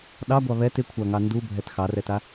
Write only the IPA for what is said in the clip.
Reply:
ɗ ɑ ɡʷ ɑ β ɛ t ɪ kʷʰ a ŋ ɑ n d u bʱ ɛ t x ɑ r ɛ t a

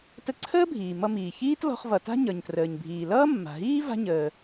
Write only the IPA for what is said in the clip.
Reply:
t ə˧ ǀʰ əː˥ bʱ iː˩ m ʌ˧ m iː˩ ç iː˥ t l ɔ̤˧ χ v ʌ˩ t a̤˥ ɲ ʌ˩ ɲ t r əː˩ ɲ bʱ iː˩ l ʌː˥ mː a̤˩ ɦ iː˥ v a̤˥ ɲ əː˩

